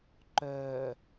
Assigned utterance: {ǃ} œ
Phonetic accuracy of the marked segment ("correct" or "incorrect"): correct